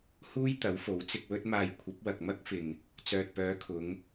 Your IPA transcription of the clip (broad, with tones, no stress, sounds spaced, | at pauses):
h uː˥ j t̪ ɐ˨˥ w f o˨˥ w t͡s ɪ˧ k̚ w ɵ˧ t̚ m aː˨ j kʷʰ ɐ˨˥ p̚ w ɐ˨ k̚ m ɐ˥ k̚ f ɪ˨ ŋ | t͡s œː˨ t̚ p œː˨˧ kʰ ʊ˨˧ ŋ